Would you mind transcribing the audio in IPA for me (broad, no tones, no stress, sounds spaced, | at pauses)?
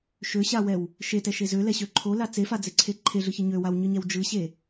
ʃ ø ɕ a w ɛ w | ʃ e t ɛ ʃ e z ø l ɛ ɕ ø ǃʰ o l a t͡s e f a d͡z e ǀʰ e ǃʰ e ɮ ɯ ç ɯ ɲ ø w a w ɲ ɯ ɲ ɛ w d͡ʒ ɯ ɕ e